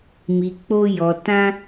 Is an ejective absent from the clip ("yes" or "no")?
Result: yes